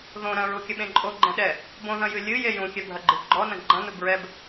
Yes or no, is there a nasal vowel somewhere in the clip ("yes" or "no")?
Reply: yes